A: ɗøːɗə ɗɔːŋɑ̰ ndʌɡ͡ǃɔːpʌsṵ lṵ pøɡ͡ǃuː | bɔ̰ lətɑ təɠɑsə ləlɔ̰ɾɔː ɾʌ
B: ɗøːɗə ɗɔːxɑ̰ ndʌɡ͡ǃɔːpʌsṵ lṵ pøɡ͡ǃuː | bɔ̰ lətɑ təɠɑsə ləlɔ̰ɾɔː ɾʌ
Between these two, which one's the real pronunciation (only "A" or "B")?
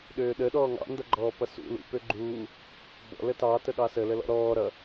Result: A